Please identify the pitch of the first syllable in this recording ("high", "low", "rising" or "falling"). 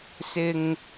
low